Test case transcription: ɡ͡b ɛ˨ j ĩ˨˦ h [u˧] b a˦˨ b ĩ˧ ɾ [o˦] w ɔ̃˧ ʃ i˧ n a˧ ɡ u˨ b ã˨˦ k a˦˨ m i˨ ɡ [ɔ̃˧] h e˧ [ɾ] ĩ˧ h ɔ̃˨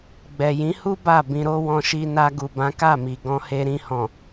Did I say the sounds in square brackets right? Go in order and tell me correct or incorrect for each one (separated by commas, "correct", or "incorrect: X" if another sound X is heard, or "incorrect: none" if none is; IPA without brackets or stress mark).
incorrect: u˦, correct, correct, correct